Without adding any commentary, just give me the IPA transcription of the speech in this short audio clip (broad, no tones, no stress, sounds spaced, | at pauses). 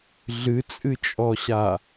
ɮ ɨ t͡sʼ ɨ t͡ʃʼ ɔ ɕ a